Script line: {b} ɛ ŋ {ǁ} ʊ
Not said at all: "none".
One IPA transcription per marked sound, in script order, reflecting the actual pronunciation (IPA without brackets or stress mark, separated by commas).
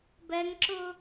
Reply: b, ǁ